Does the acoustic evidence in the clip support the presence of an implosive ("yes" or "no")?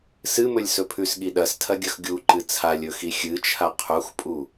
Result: yes